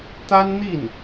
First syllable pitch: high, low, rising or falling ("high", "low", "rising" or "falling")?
high